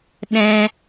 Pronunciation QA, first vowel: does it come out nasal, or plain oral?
nasal